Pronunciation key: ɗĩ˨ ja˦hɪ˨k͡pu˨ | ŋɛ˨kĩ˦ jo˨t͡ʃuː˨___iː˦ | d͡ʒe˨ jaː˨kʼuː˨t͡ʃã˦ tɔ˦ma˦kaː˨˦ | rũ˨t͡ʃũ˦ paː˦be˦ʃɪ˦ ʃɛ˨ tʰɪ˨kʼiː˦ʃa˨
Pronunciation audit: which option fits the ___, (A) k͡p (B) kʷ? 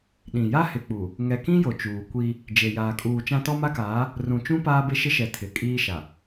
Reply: B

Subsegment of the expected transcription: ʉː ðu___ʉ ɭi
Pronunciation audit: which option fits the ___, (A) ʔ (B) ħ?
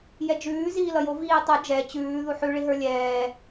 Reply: B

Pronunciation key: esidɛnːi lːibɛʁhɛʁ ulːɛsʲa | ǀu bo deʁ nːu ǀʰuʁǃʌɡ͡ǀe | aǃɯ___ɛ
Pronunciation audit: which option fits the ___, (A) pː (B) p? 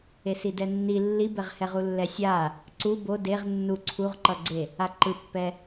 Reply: A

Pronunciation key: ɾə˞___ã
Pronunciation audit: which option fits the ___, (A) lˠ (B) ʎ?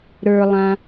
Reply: A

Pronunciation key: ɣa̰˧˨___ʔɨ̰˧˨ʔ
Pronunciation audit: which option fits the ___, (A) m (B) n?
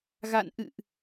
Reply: B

